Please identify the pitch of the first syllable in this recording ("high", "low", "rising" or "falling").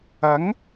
rising